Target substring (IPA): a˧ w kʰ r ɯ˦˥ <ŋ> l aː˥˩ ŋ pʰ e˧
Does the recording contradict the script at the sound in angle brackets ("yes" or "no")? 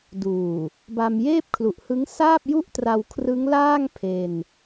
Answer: no